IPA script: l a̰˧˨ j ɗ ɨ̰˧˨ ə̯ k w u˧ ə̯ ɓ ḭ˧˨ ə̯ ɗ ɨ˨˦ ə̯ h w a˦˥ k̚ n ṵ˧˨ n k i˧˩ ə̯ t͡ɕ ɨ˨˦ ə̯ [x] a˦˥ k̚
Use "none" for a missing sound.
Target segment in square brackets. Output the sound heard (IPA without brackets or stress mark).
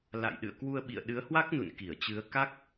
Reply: k